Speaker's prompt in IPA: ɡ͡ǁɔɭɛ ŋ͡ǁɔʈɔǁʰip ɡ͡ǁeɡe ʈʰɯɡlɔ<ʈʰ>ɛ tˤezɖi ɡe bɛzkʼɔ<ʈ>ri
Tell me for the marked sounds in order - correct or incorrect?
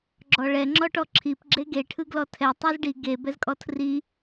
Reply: incorrect: tʰ, incorrect: tʰ

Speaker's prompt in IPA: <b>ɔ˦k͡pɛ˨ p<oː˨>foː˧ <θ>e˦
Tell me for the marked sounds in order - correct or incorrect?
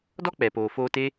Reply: incorrect: d, correct, incorrect: t

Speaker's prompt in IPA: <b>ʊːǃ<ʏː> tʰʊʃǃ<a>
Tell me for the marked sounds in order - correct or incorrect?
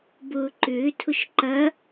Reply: correct, correct, incorrect: ɐ

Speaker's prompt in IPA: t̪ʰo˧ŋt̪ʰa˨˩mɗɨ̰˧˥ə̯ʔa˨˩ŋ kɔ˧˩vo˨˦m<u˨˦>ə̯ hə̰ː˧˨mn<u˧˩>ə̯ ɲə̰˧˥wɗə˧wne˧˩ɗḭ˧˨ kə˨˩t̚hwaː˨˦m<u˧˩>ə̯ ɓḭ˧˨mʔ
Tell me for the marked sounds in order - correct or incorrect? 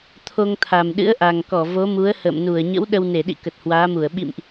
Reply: correct, correct, correct

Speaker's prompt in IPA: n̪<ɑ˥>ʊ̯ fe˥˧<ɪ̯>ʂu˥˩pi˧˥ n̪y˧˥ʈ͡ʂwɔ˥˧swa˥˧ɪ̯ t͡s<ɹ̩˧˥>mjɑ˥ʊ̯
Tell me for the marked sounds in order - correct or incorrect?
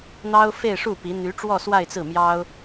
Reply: correct, correct, incorrect: ɹ̩˥˩

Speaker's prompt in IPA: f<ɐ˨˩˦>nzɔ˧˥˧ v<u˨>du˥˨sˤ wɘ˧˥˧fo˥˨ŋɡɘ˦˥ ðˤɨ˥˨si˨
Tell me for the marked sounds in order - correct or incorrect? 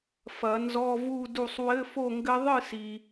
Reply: correct, incorrect: u˥˨

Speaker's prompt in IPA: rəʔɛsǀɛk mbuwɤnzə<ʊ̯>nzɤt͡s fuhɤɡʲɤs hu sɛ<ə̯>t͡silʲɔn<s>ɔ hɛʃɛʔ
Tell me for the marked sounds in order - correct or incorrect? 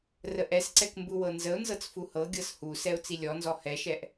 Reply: correct, incorrect: ʊ̯, incorrect: z

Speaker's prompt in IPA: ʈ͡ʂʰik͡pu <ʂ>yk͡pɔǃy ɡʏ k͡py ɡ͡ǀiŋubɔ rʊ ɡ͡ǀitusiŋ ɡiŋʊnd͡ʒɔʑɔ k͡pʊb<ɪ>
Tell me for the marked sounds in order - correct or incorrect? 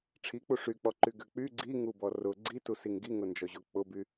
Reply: correct, incorrect: y

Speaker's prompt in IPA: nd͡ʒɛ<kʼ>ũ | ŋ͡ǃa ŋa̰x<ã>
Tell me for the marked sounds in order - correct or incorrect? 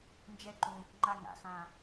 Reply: incorrect: ǃ, correct

